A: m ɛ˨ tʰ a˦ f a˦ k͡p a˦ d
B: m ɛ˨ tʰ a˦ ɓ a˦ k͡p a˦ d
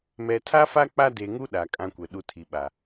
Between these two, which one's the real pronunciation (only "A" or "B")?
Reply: A